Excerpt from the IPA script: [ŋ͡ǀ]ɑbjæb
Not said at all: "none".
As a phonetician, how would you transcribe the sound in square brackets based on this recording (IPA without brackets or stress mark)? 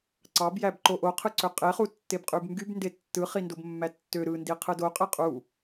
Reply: ǀ